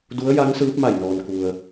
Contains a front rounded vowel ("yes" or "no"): no